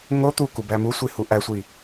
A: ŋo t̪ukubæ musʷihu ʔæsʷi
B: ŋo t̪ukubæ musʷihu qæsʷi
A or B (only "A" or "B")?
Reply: A